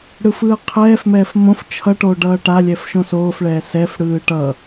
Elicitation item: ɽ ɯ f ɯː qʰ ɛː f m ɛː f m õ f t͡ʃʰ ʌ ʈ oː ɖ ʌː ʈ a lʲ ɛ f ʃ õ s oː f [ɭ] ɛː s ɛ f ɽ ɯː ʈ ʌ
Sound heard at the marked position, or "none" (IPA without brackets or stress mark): ɭ